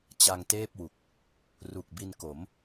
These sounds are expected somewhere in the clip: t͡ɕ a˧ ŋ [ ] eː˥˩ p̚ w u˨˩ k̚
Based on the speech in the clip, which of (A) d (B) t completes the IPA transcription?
B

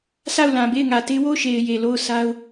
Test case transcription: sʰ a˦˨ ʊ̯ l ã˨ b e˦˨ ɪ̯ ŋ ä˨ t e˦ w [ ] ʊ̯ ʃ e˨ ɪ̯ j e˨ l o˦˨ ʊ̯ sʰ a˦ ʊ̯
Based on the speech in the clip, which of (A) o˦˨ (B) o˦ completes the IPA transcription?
A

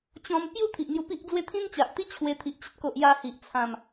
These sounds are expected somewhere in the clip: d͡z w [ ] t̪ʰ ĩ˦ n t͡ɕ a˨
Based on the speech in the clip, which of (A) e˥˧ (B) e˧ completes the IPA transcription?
A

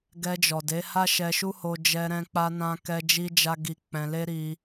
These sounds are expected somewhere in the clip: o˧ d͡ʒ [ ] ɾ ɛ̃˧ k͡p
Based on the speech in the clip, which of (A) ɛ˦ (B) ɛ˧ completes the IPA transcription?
B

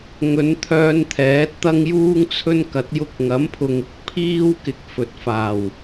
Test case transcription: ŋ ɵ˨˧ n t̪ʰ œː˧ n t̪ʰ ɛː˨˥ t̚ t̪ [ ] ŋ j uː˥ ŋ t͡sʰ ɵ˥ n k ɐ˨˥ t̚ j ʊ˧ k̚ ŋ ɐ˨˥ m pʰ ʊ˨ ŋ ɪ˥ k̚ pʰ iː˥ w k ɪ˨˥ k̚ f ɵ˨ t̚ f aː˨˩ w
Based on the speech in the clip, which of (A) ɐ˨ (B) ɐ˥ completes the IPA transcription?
B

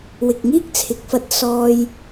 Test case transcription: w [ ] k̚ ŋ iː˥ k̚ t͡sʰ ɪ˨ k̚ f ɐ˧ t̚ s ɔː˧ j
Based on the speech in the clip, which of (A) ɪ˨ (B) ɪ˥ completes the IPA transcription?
A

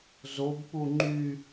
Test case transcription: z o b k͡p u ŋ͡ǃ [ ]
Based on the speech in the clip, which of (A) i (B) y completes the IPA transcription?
B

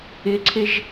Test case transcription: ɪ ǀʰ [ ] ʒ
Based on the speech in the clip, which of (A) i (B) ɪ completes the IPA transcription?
B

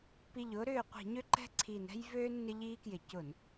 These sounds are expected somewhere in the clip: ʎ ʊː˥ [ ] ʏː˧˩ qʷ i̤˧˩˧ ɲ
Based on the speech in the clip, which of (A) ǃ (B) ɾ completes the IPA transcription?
B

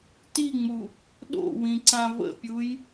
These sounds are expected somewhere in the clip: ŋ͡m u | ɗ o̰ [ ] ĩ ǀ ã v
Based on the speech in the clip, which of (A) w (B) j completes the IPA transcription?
A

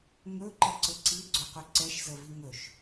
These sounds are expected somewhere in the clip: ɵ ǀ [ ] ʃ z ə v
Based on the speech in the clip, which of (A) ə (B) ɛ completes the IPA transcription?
B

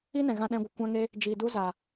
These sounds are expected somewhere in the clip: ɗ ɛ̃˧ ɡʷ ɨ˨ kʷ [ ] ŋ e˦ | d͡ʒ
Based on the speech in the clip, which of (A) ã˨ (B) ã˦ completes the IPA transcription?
B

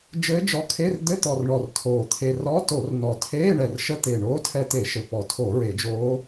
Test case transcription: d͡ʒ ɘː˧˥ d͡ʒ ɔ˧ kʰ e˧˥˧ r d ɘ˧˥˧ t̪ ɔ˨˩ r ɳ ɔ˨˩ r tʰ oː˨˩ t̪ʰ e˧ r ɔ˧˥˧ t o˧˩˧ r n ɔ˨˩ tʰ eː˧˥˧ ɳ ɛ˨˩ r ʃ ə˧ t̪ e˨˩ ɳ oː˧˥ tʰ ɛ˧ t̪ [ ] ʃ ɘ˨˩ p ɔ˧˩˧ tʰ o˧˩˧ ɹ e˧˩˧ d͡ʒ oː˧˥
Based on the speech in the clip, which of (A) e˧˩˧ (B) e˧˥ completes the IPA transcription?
A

